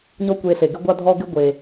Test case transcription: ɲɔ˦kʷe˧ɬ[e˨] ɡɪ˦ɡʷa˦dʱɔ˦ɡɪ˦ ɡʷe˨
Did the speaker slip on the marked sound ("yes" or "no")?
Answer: no